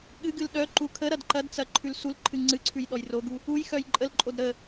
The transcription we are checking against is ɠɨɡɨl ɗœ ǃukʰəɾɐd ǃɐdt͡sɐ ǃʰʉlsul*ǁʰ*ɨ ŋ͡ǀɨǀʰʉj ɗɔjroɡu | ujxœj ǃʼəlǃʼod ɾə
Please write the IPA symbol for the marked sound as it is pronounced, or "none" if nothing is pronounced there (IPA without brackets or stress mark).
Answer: ǃʰ